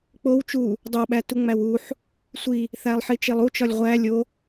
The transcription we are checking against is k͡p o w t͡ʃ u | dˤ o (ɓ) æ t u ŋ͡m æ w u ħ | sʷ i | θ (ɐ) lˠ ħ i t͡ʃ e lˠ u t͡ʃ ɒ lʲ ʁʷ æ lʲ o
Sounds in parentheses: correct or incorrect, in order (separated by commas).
correct, incorrect